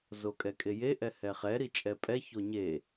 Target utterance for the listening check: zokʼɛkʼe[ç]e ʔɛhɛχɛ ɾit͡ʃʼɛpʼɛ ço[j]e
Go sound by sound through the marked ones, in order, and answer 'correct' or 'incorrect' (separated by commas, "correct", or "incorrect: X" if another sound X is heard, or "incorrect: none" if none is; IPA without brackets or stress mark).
incorrect: j, incorrect: ɲ